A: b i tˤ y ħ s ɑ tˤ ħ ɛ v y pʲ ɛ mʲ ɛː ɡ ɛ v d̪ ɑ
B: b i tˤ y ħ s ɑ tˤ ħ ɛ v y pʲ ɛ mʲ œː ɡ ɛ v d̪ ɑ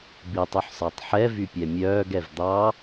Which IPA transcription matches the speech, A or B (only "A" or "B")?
B